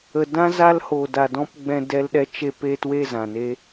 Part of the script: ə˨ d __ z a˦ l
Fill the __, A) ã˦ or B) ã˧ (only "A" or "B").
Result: A